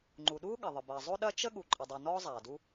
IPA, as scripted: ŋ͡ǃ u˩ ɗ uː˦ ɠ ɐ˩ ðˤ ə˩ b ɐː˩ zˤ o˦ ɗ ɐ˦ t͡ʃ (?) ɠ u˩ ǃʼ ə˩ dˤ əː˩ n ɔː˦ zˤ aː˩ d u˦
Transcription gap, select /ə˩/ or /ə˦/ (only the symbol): ə˦